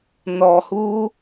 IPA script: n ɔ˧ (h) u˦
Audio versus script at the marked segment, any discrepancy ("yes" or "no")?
no